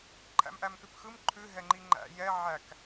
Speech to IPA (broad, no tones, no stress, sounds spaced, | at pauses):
ǃʰ æ̰ m ʔ æ m k ʉ p x ɯ m ǃʰ ʉ ɦ ɛ ŋ͡ǃ i ŋ͡ǃ æ̰ j ɛ ʕ æ k